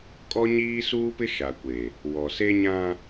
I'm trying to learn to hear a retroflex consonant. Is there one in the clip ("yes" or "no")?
no